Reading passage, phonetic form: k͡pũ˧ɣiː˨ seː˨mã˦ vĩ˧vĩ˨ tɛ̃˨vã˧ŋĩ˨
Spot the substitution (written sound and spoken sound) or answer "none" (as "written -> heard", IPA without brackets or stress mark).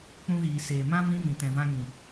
none